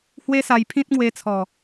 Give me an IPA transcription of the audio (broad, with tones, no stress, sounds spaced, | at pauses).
h w e˦ s a˧ j pʰ ĩ˦ t̚ ŋ w e˧ t͡sʰ ɔ˨˩